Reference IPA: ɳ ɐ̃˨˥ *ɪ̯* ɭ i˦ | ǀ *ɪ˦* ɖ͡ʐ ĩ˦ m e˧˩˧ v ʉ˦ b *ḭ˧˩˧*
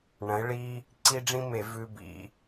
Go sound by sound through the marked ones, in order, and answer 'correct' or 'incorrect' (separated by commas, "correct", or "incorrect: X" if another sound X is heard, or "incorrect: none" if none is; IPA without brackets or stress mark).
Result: correct, incorrect: i˦, correct